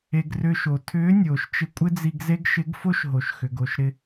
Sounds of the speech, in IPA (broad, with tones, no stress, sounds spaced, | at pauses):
e˧ ɡ r ʏː˧ ʃ o˩ tʰ ʏː˧˥ nʲ oː˩ ʃ t͡ʃ ɪ˧ kʷʼ ɪ˥ d͡z i˧ ɡ z e˥ ɡ ʃ ɪ˧˥ ɡ f o˥ ʃ ɦ o˩ ʃ x ʏ˩ ɡ o˩ ʃ ɾ ɪ˧